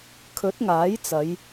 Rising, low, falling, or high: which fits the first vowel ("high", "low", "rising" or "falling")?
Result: rising